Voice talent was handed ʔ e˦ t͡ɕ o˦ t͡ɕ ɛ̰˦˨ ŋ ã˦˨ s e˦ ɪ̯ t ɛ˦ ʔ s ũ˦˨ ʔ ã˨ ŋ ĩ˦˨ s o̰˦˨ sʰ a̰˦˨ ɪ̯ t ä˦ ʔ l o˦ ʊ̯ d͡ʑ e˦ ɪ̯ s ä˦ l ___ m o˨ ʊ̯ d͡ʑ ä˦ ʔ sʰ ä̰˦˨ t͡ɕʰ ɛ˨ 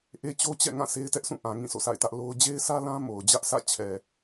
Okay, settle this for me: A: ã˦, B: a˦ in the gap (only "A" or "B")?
A